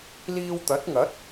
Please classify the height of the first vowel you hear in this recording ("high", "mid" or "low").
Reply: high